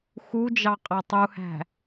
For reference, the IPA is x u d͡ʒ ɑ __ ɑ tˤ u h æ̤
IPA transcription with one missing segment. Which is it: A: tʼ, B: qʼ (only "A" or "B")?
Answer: B